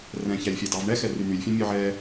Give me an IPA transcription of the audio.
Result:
r ɛ̃ ç æ lʲ fʲ æ d ɑ v ɳ ɛ x ɛ r y n̪ y lʲ fʲ ɛ̃ mʲ œ ʕ ɛ

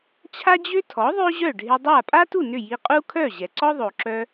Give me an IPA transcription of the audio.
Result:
t͡ɕʰ a˥ d͡ʑ ø˥ tʰ ɔ˩˥ ðˤ ø˥ ʑ œ˥˩ ɖʱ ɪ˧ dˤ a˥˩ pʼ a˥ t u˥˩ n ʏ˥˩ j i˧ qʼ u˥ kʰ œ˥˩ ʑ ɛ˩ ǀ ɔ˥ ðˤ o˩ ǁ œ˧

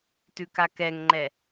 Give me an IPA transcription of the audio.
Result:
t ʉ k a k ɛ ŋ ŋ͡ǃ ɛ

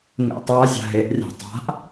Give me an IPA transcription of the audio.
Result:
ŋ ḛ tˤ a zʲ a̤ ɦ e ʔ rʲ a̤ tˤ a̤ ʔ

